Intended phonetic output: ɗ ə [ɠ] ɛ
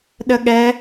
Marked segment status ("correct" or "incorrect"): correct